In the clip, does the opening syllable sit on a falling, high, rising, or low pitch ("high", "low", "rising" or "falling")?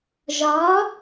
rising